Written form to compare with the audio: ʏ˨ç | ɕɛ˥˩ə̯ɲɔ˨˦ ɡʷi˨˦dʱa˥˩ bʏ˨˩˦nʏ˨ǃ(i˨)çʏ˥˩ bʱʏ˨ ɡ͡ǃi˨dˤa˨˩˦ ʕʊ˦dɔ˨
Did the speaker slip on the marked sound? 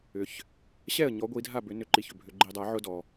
no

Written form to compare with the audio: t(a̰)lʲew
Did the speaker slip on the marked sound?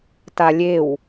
yes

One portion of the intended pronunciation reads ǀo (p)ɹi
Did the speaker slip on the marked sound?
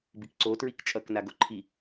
yes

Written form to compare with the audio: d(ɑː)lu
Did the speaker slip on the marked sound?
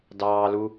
no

